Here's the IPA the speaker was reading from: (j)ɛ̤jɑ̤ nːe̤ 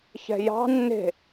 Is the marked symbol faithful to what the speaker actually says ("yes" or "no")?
no